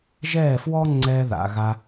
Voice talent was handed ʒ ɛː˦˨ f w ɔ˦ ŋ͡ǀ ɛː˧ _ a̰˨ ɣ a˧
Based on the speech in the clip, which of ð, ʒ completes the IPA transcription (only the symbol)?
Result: ð